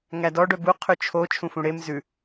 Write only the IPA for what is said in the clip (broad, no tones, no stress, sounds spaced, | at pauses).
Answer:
ŋ æ d ɔ ɖ œ b u qʰ ʉ t͡ʃʰ o t͡ʃʰ ũ f ũ ɽ e m z ʉ